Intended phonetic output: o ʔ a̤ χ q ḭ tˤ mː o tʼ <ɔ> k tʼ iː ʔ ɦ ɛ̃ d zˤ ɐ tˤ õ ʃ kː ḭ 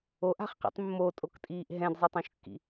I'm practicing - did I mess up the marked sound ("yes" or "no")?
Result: yes